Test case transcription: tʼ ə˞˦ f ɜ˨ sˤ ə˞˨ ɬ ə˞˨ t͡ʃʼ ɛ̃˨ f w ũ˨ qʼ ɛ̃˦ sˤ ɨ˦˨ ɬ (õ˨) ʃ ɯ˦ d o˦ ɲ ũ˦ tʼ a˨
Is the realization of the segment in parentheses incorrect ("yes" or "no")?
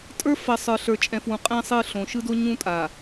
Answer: no